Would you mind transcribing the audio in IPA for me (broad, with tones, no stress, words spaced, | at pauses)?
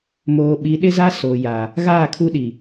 moː˨ɓi˨˦ɗɪ˦za˦ so˨ja˨ | ɣaː˦˨kʰu˦ɗi˨